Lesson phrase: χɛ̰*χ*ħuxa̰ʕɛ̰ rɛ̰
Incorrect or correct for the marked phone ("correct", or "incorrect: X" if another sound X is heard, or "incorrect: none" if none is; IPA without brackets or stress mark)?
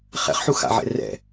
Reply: correct